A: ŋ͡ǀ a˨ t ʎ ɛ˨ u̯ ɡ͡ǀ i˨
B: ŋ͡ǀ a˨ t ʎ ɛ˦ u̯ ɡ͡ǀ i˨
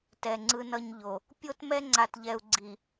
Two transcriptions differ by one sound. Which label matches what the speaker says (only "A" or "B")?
A